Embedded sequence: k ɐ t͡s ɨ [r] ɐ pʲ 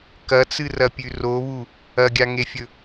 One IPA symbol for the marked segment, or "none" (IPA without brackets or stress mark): r